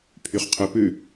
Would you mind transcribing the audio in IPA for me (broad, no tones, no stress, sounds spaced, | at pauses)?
pʰ y χ qʰ ɵ p ʉ